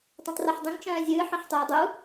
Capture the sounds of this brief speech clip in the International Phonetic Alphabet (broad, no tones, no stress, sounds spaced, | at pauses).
tˤ ũ tˤ r ɤ ħ dˤ ĩ ŋ t͡ʃ œ̃ː zʲ ɨː ħ œ̃ ħ tˤ ʊː dˤ u